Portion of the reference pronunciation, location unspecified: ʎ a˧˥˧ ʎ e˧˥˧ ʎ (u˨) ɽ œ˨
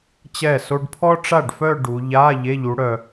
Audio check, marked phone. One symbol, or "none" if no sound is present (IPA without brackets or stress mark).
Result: u˨˦